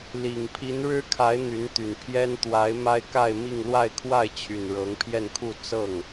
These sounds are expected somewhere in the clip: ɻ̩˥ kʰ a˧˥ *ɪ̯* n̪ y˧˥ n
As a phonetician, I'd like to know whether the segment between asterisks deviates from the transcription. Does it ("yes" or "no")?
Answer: no